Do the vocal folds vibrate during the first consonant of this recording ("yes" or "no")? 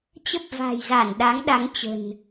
no